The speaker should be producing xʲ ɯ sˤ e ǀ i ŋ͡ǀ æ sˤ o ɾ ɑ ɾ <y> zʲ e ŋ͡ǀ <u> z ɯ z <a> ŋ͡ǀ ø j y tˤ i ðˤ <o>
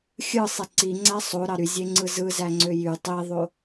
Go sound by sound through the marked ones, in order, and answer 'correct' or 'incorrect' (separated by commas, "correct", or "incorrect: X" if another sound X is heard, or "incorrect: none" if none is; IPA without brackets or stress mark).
correct, incorrect: ɯ, incorrect: æ, correct